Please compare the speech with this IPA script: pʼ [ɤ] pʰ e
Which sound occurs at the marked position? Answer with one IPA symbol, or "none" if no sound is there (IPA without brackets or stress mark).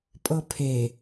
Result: ɤ